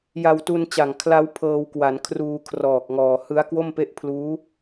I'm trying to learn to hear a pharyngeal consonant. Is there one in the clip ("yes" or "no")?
no